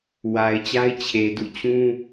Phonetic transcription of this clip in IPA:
w a˨ ɪ̯ t͡ɕ a˦ ɪ̯ t͡ɕʰ e˨ d ṵ˦˨ t͡ɕ ũ˦

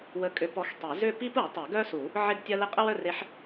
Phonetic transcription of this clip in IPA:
w ə˧˥ kʼ ʏ˧˥ p ɔ˧˥ x tˤ i˨˩˦ z ʏ˥˧ p i˥ p u˨˩˦ tˤ i˨˩˦ ɡ œ˥ s u˨˩˦ | ʕ ɪ˥˧ ɡ tʲ ɐ˥ l ɪ˥˧ qʼ ə˥ w œ˥˧ r e˧˥ ħ

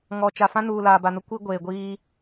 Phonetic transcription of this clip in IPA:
ŋ ɔ˨ t͡ʃ a˨ f ã˦ n uː˨ l aː˨ b a˨ n ʊ˦ kʷ i˦ ɡʷ eː˨ ɡʷ iː˦

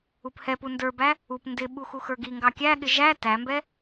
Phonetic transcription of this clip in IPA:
u p h ɛ p u n d ə˞ b æ | u p n d ɪ ɓ u x u x ə˞ ɡ i ŋ ɡ ɑ kʲ æ ɠ ɪ ʒ æ t æ m b ɛ

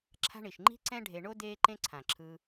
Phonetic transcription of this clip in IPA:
ǁʰ a̤˦ ɳ i˩ ʃ ŋ͡ǃ i̤˥ ǀ ɛ̃˦ ɖʱ e˨ ɳ o˥ d eː˦ ǃ ẽ˦ ǀʰ ã˩ ǁʰ ɯ˨

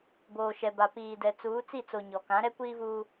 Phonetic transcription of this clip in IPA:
b oː˨ ʃ ɛ˨ b a˨ p iː˨ d ɛ˨ t͡s uː˨˦ t͡s i˦˨ t͡s o˨ ɲ ɔ˨ k ã˨˦ ɾ ɛ˦ kʷ iː˦ v uː˦

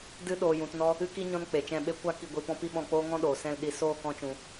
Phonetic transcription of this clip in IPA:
d ɨ˦ ɗ oː˧ j ũ˧ t n ɔ˦ | ɨ˦ k i˦ ɲ ɔ̃˦ n k͡p e˨ t͡ʃ ɛ̃˦˨ ɓ e˦ kʷ a˦ k i˦˨ ɡʷ i˧ p ɔ̃˦ p i˦ ɓ ɔ̃˧ k͡p oː˦ ŋ ɔ̃˦ ɗ oː˨ s ɛ̃˦˨ l ɗ i˧ s oː˦˨ k ɔ̃˧ t͡ʃ ũ˨

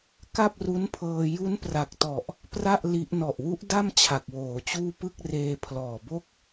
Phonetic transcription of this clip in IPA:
k a˥˩ p̚ r u˦˥ n pʰ ɤː˧ j u˦˥ n p r a˨˩ k̚ t ɔ˨˩ ʔ | p r a˥˩ ʔ l i˦˥ ʔ n ɔ˨˩ ʔ w u˦˥ ʔ d a˥˩ m t͡ɕʰ a˨˩ k̚ w oː˩˦ t͡ɕ uː˥˩ p ɯ˥˩ k̚ r eː˧ pʰ l ɔː˨˩ b o˥˩ k̚

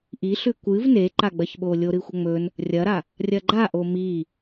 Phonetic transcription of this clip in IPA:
ʔ i ɬ ʉ kʷ ɨ v n e ǃ a ɡ͡b ɐ ç ɓ o lʲ o ɾ ɨ xʷ ɐ ŋ͡m ɵ n | rʲ ɐ ɾ a | rʲ ɐ ɡ͡ǃ a ʔ o m i

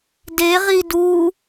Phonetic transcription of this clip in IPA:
d e ʁ i d u

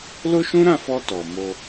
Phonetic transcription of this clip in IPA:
l o˦ ʃ ũ˦ ɾ ã˦˨ f ɔ˧ t ɔ˨ m o˧

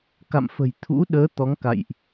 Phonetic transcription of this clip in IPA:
k a̰˧˨ m f ə̤˨˩ j t̪ʰ ṵ˧˥ ɗ əː˨˦ t̪ ɔ˨˦ ŋ k a̰˧˨ j ʔ

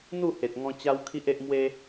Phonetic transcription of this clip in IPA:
n̪ u˥˧ h e˨ t̚ ŋ ɔ̃˧ t͡ɕ a˦ w kʰ i˦ ʔ e˦ ʔ m w e˦

